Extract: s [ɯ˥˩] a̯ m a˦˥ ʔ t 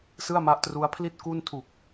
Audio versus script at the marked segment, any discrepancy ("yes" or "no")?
no